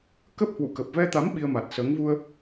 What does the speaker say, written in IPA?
k ə˦˥ p̚ h w ṵ˧˨ k ə˨˩ p̚ v ɛ˧ t̪ a˨˦ m ɓ i˧ ə̯ m a˨˩ t̚ s əː˨˦ ŋ v u˧ ə̯

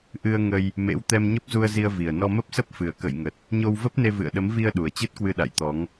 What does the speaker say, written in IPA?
ʔ ɨ˧ ə̯ ŋ ə˧ j | m ḛ˧˥ w t̪ ɛ˧ m ɲ ə˦˥ p̚ z u˧ ə̯ z i˧ ə̯ v i˨˩ ə̯ n ɔ˧ m ə˦˥ p̚ s ə˦˥ p̚ f ɨ˨˩ ə̯ k ə̰˧˨ j ŋ ə˨˩ t̚ | ɲ o˧ w v ə˦˥ p̚ n e˧ v ɨ̰˧˨ ə̯ ɗ ə˨˦ m v i˧ ə̯ ɗ u˨˩ ə̯ t͡ɕ ɨ˦˥ t̚ k w ɨ˧ ɗ a̰˧˨ j t̪ ɔ˨˦ ŋ

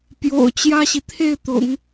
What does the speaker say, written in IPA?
p j o̰˨˩ ʊ̯ t͡ɕ j ä˥ ɕ i˨ t̪ʰ e˥˩ ɪ̯ t̪ ʊ̰˨˩˦ ŋ

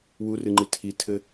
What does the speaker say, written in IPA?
w u r ɨ ŋ͡ǃ i tʰ i tʰ ɘ

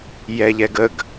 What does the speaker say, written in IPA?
j ɛ ʎ ɛ ɡ ə ɡ

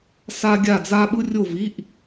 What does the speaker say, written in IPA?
s a˥ ɡʲ a˥˧ d͡z a˥ ɓ ɯ˥ rʲ o˥˧ v i˧˥˧ ʔ

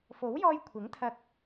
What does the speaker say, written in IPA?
f o˨˥ w j ɔː˧ j kʷʰ ɪ˨˥ ŋ t̪ʰ ɐ˧ k̚

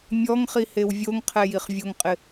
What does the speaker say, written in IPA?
mʲ ɔ ŋ χ i h e w vʲ o ŋ qʰ ɛ j i χ vʲ o ŋ qʼ ɪ

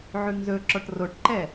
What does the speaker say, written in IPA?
ʕ ʉ ŋ z ɵ ǁ ɔ ʈ r o ʈ ǃ ɛ

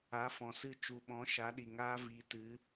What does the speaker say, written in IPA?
a˨˦ f ɔ̃˨ s ɨ˦˨ t͡ʃ u˨ ɓ ɔ̃˨˦ ʃ a˨˦ ɗ i˨ ŋ aː˦ v i˧ t ɨ˨˦

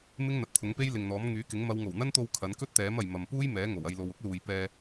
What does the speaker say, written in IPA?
m ɪ˥ ŋ n̪ ɐ˨ t̚ t̪ʰ ʊ˨˥ ŋ p e˥ j l ɪ˨ ŋ n̪ ɔː˨˥ m ŋ yː˨˥ k ɪ˨˥ ŋ m ɐ˨˧ w ŋ o˨˩ w n̪ ɐ˥ n t̪ o˧ w kʰ ɐ˨˥ n k ɵ˥ t̚ t̪ ɛː˨˥ m ɐ˨ j m ɐ˨ m p uː˥ j m ɛː˨˥ ŋ o˨˩ w ɐ˧ j l o˨ w ʊ˥ k̚ l uː˨ j p ɛː˧

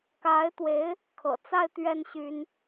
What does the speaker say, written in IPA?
k a˧˥ ɪ̯ t̪ w e˧˥ ɪ̯ | kʰ ɤ̰˨˩ t͡s a˥˧ ɪ̯ t̪ ɥ ɛ˥˩ n ɕ y˥ n

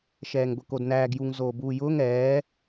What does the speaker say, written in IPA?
ʃ ɛː ŋ ɡʷ ɛ k o d n æː ɡ j u ŋ z oː b uː j ʊː ŋ ɛː

